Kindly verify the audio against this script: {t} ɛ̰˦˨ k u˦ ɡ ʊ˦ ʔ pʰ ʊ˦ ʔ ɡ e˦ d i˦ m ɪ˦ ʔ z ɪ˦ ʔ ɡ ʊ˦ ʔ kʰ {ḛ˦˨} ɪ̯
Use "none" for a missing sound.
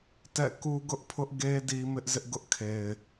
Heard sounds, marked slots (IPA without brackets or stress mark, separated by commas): t, e˨